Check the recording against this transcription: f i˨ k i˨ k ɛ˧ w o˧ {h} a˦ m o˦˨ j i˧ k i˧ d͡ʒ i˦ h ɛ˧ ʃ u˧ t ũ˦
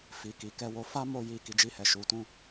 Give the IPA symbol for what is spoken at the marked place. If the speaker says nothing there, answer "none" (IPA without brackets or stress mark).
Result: f